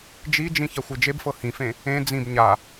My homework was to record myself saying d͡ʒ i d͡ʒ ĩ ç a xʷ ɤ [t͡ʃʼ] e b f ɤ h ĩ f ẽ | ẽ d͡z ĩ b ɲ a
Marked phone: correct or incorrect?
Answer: incorrect